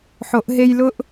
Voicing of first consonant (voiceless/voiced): voiceless